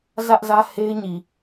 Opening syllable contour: high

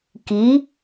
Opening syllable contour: rising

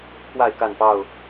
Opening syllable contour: falling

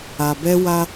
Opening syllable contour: low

